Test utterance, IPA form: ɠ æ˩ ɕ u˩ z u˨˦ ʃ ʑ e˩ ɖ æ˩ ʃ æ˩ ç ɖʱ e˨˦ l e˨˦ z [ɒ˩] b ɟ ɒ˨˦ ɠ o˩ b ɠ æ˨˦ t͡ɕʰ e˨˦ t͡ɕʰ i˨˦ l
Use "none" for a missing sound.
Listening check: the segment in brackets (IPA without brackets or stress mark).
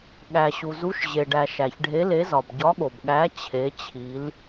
ɒ˩